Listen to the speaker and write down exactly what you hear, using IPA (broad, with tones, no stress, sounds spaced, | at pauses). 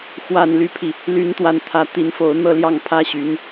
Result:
x w a˨˩ n l y˦ pʰ i˩ | l y˧˥ n t̪ w a˨˩ n t̪ʰ ä˧˥ t̪ i˧˥ n f o˧˥ ʊ̯ n̪ ɤ˥˧ l j ɑ˥˩ ŋ pʰ ä˥ ɕ y˧˥ n